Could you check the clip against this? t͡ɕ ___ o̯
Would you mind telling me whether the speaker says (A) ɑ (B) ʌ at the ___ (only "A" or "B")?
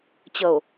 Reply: B